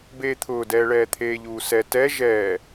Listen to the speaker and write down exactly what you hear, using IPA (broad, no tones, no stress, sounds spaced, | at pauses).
b eː t̪ʰ ʊː d ɛː ɭ ɛː t̪ʰ eː ʎ uː s ɛ t ɛ ʒ ɛː